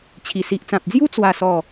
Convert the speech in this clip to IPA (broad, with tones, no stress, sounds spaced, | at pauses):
t͡ɕʰ i˨˩ s i˨ ʔ t͡s ã˨ p̚ d͡z j u˦ t͡s w a˥˧ s ɔ˥˧